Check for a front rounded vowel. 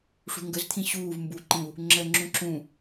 absent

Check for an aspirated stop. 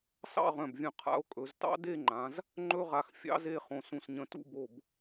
present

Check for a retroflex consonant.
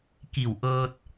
absent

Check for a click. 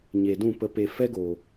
absent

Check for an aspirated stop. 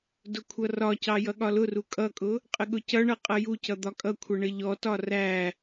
present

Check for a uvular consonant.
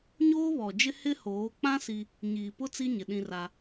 absent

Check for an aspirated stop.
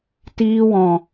absent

